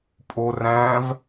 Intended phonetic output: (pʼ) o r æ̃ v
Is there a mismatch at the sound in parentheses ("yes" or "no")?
no